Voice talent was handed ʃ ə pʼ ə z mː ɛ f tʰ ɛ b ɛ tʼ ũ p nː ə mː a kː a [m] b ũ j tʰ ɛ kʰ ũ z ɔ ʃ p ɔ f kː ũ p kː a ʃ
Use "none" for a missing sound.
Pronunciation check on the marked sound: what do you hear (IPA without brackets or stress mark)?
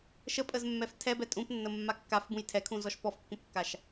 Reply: f